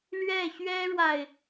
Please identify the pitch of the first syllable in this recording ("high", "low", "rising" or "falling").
falling